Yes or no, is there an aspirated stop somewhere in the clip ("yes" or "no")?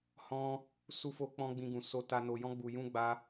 no